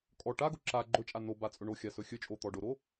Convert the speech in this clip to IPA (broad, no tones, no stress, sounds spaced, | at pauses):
kʼ ɔ ʈ a ɡ ʊ ǁ a ɡ͡ǃ ɵ t͡ʃʼ a n o b a t͡sʼ ɵ ɳ o xʲ a s ɵ xʲ ɵ t͡ʃʼ o t̪ ɔ ɖ ʊ ɾ o